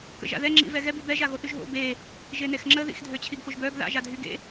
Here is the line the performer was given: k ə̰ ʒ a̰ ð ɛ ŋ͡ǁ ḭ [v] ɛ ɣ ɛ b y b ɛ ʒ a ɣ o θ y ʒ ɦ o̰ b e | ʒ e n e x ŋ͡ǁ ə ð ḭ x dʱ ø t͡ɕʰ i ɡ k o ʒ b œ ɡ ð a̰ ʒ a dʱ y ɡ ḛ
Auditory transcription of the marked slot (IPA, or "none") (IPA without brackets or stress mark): v